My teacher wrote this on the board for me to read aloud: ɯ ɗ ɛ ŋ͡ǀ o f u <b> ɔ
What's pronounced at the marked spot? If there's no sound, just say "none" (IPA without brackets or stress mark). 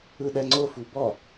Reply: b